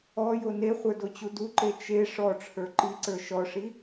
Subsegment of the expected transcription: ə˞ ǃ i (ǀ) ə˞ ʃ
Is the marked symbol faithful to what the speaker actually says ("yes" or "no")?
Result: yes